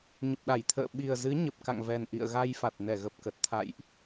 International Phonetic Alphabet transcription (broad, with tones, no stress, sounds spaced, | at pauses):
ɲ ə˨˩ p̚ ɗ a˧˩ j t̪ʰ ə̰ː˧˨ ɓ i˨˩ ə̯ z ɨ˨˦ ɲ ə˨˩ p̚ k a̰˧˨ ŋ v ɛ˨˩ n ʔ ḭ˧˨ ə̯ ɣ a˧ j f a˨˩ t̚ n ɛ˧˩ ɣ ə˨˩ p̚ k ə˨˩ t̚ t̪ʰ a̰˧˨ j ʔ